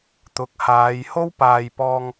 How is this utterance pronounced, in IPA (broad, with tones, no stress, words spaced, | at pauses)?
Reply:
t̪ʊ˨˥k̚haː˨˧j ho˥wpaː˨jpɔː˧ŋ